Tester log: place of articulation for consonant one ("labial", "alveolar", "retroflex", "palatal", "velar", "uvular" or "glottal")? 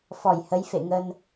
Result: labial